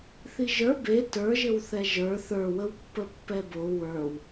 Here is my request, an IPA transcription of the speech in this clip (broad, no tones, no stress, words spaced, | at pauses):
θiʒə˞ be tə˞ʒɘw θɛʒə˞ θə˞wəwpːə pːɛbo wə˞w